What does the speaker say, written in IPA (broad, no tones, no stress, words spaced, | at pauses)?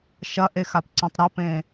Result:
ʃɐʔexapǀɔ̃tˤ ɾɐpẽ